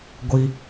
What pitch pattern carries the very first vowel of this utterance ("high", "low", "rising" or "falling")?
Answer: high